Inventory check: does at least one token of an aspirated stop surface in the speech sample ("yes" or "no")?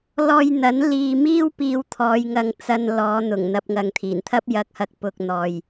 yes